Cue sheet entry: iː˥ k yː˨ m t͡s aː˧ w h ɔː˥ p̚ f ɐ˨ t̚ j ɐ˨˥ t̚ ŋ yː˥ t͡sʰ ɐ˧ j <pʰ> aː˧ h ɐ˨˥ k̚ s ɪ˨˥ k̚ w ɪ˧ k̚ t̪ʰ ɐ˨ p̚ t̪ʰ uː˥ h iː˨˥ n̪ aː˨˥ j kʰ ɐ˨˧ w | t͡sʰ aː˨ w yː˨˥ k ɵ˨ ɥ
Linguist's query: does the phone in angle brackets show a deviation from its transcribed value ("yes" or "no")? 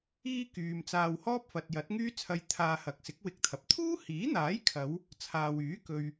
yes